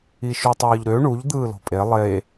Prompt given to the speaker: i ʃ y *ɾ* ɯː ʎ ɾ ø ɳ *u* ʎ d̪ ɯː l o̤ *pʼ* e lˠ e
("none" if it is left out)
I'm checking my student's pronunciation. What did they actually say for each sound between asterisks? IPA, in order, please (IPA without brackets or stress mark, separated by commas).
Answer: tˤ, u, pʼ